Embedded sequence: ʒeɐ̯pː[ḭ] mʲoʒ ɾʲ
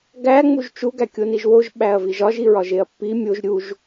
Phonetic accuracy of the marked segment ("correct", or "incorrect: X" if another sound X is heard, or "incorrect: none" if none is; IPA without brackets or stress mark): incorrect: i